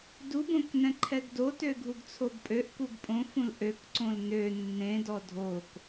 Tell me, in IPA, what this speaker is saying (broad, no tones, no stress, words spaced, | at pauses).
dubõknɛ̃ ǃʰɛɡdotø ɡʱuɡt͡sʰobpʼøʔkuɡ pʼõ fũlʔøkǀõl nø nːẽdɔ dʱok